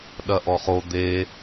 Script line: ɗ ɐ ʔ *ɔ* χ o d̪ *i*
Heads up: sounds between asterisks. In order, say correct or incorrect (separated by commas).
correct, incorrect